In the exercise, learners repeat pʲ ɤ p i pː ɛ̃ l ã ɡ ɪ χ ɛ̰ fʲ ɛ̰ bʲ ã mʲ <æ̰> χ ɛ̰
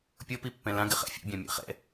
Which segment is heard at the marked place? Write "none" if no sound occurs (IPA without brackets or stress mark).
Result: æ̰